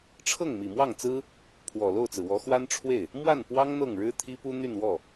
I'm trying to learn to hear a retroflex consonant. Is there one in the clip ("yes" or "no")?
yes